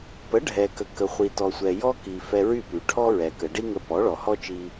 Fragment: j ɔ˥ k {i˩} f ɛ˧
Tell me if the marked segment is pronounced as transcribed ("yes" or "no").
yes